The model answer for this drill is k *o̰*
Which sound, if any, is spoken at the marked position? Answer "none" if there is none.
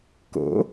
o̰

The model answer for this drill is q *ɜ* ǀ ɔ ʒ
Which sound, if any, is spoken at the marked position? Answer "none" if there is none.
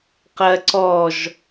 ɜ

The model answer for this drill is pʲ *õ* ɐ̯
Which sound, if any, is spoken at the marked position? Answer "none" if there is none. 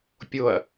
o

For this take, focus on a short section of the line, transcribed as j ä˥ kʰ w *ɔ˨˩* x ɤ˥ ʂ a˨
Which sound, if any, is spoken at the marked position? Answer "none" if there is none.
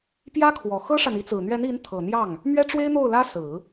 ɔ˨˩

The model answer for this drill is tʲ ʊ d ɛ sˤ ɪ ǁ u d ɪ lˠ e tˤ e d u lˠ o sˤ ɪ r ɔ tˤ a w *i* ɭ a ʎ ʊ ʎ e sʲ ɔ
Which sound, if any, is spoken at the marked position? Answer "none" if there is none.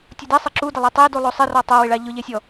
ɪ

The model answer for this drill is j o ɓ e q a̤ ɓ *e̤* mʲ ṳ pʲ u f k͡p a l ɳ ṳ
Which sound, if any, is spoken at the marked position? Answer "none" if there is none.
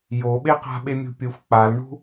e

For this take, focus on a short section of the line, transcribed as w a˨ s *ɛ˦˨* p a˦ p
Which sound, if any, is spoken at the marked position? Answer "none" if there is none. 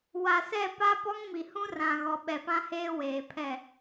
ɛ˦˨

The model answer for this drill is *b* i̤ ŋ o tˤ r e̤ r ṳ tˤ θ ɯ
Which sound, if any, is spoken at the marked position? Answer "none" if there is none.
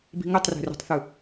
b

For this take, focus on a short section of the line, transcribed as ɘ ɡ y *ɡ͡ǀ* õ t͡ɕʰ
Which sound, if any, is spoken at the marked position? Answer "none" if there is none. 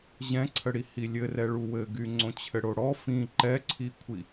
ŋ͡ǀ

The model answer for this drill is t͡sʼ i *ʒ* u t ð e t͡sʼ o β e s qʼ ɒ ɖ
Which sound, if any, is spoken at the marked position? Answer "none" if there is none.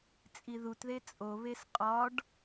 ð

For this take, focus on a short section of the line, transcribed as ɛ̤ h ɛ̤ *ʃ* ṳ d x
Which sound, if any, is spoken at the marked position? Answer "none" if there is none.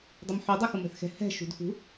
ʃ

